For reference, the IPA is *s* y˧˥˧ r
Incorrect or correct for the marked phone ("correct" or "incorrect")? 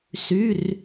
correct